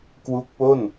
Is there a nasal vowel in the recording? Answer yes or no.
no